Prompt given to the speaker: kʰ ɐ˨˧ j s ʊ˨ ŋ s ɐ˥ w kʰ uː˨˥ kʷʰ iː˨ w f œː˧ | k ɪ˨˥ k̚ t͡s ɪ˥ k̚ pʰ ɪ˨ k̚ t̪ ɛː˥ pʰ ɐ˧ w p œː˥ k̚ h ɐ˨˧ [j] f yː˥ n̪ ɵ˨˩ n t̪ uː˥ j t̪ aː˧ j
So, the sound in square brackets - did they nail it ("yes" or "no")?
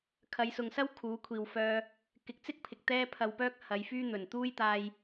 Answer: yes